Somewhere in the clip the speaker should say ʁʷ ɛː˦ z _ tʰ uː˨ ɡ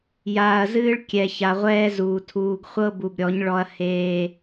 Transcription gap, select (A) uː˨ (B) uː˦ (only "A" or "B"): A